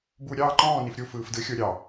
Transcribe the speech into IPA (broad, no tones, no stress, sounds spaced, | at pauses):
b u ɾʲ ɑː ǃ ɔ̃ː n i f ɾʲ u f ɯː f d ɯ xʲ o ɾʲ ɑ